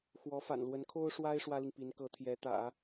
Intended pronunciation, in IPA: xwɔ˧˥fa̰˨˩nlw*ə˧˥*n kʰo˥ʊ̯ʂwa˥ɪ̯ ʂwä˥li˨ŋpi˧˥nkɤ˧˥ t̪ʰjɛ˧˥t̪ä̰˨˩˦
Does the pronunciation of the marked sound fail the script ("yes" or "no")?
no